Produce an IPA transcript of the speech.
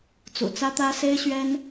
t͡s ṵ˨˩ t͡s ä˥ t̪ ä˥ s e˥ ɪ̯ ɕ ɥ ɛ˥ n

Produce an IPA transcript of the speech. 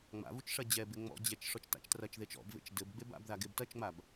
ŋ͡m a̰ v u t͡ʃ ʂ ɐ d͡ʑ ɛ b e ŋ͡m ɔ̰ d͡ʑ ɛ t͡ʃ ʂ ɔ t͡ʃ t a̰ t͡ʃ t r ɐ t͡ʃ ð e t͡ʃ ɔ̰ b v ḛ t͡ʃ d ɘ b ɡ͡b e b a̰ b ð a ɡ e b t ɐ t͡ʃ ŋ͡m a b

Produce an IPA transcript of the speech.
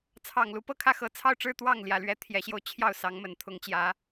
t͡sʰ ɑ˨˩ ŋ l u˧˥ p ɤ˥˧ kʰ ä˥˩ x ɤ˧˥ t͡sʰ ɑ˥˧ ʊ̯ ʈ͡ʂ ɻ̩˥˧ t̪ w ɑ˥˩ ŋ l j ä˨˩ l ɥ ɛ˧˥ t̪ʰ j ɛ˧˥ ɕ j o˧ ʊ̯ t͡ɕʰ j ɑ˥˩ ʊ̯ s ɑ˧˥ ŋ m ə˨˩ n t̪ʰ ʊ˧˥ ŋ t͡ɕ j ä˧˥

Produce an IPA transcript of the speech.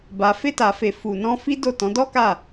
b a˨ f e˧ t a˨ f e˨ f u˨ n ɔ̃˧ f i˦ d o˦˨ t ɔ̃˨˦ d ɔ˦ k a˦˨

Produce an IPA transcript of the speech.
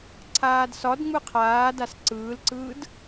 ǀʰ aː d s ɒ d ŋ͡m ɯ qʰ aː d a s ǀ ɯː l ǀ ɯː d

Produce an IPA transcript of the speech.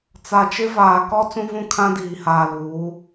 t͡s a˨ t͡ʃ ɪ˦ v aː˨ k ɔ˦ t͡s ũ˦ v ũ˦ kʰ ã˦ d iː˨ h aː˨ l uː˨˦

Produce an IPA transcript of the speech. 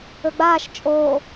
ɵ ɡ͡b aː ʃ t͡ʃʼ oː

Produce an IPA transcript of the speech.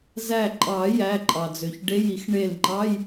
z æ˧˩ ǃʼ ɑ˨˩˦ j æ˩˧˩ ǃʼ ɑ˩ d͡z ø˩ ç ɖ e˧˥˧ j i˨˩˦ x ɳ e˧˩ l ŋ͡ǃ ɑ˧˥˧ j

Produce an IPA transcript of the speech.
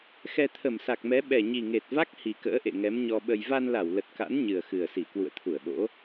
x ɛ˧ t̪ʰ ə˧˩ m s a˨˩ k̚ m ɛ˨˦ ɓ ɛ˨˩ ɲ i˨˩ ŋ e˨˩ t̚ v a˦˥ k̚ h i˨˩ k ə̰ː˧˥ ʔ ḛ˧˨ ŋ ɛ˨˦ m ɲ ɔ˧ ɓ ə˧ j v a˧ n l a˧˩ w l ə˨˩ t̚ k a̰˧˥ n ɲ ɨ˨˩ ə̯ x ɨ˨˩ ə̯ s i˧˩ k w ṵ˧˨ ə̯ t̪ʰ u˧˩ ə̯ ɓ o̰˧˥

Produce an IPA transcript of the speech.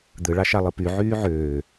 d̪ ɯ ɭ ɑ ʃ ɑ lˠ ɯ p y ʕ yː ʕ øː

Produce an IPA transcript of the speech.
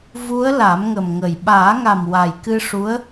v u˧˥ ə̯ l a˨˩˦ m ŋ ə˨˩ m ŋ ə˨˩ j ɓ aː˨˩˦ ŋ a˨˩ m w a˨˩ j k ɨ˧ ʂ u˧˥ ə̯

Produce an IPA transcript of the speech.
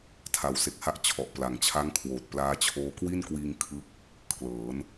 tʰ a˩˦ w s e˨˩ k̚ h a˦˥ ʔ t͡ɕʰ ɔ˨˩ ʔ p l a˨˩ ŋ t͡ɕʰ a˦˥ ŋ kʰ w oː˨˩ t̚ p l aː˦˥ t͡ɕʰ oː˦˥ k w i˥˩ n k w iː˧ ŋ kʰ ɯ˦˥ k̚ | kʰ l ɤː˩˦ n

